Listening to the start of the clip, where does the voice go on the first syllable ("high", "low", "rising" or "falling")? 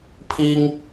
high